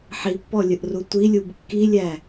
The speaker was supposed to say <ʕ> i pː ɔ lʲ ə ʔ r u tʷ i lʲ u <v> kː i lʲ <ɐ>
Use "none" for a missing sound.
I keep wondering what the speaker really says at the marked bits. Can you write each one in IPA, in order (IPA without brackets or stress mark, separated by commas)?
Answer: ħ, b, æ